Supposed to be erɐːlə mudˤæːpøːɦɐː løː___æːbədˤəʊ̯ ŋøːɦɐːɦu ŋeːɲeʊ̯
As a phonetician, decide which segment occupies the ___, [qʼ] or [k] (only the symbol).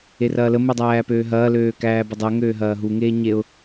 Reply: k